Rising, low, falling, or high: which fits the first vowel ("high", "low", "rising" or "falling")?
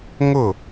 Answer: falling